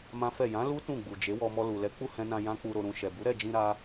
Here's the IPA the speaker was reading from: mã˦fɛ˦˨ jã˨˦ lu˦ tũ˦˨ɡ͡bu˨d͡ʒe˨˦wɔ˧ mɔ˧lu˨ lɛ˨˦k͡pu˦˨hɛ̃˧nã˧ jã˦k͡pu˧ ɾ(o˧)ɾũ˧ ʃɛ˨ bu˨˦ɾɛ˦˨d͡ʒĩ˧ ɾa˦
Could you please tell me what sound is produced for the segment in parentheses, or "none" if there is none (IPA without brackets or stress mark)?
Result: o˧